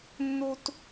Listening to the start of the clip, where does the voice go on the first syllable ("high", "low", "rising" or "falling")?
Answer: high